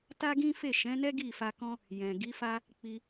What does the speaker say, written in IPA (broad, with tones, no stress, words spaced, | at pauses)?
ta˦ɡĩ˦fe˦˨ ʃɛ̃˨˦nɛ˦ ɡi˦˨fa˧ kɔ̃˦ | jɛ̃˨ ɡi˨˦fa˦ | k͡pi˧